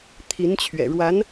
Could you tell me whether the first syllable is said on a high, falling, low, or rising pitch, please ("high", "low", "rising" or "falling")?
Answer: rising